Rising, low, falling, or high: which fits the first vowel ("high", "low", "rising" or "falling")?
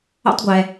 high